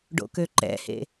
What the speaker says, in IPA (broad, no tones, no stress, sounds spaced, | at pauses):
ɖ o̰ k ø ǃ ɛ̰ h ḛ